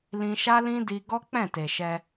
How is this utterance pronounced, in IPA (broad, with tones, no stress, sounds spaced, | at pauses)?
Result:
l ĩ˧ ʃ a˦ l ĩ˦ d i˧ ɡ ɔ˦ k͡p ɛ̃˦˨ t e˨ ʃ ɛ˧